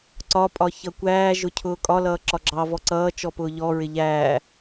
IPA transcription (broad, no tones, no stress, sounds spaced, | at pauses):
ǀ ɒ pʼ ɒ ç ʌ kʷ æː ʒ ʊ cʰ ʊː kʼ ɒ l ʌː ǁ ɒ ɡ͡ǁ ɑ v ɔ ǀ ʌː t͡ʃ ɔ p ʊː ʎ ɔ ɹ ɪ ʎ æː